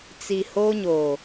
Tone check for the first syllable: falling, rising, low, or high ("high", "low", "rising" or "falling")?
low